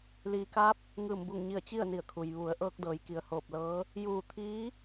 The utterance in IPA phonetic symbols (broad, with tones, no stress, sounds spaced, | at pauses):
l iː˩ k a˧˥ p̚ | ŋ ɯː˧˩ m b u˧˩ ŋ ɲ i˧˩ ə̯ t͡ɕ i˥˨ ə̯ n i˧˩ ə̯ kʰ u˩ j ʋ u˩˧ ə̯ ʔ ɤː˧ k̚ d ɤː˩˧ j k i˩ ə̯ h oː˧˩ p̚ l ɤː˧˥ | j uː˧˩ t̪ʰ iː˧˥